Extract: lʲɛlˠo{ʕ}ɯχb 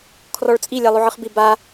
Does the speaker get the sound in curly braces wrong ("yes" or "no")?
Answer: no